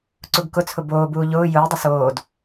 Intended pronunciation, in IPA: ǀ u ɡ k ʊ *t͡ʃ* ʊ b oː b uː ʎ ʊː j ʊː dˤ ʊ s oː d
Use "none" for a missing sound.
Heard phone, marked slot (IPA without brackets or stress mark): t͡sʰ